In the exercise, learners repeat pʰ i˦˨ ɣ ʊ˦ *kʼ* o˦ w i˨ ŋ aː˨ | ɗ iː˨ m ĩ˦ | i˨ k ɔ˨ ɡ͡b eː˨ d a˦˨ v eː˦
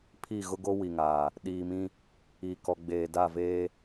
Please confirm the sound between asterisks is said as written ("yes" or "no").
no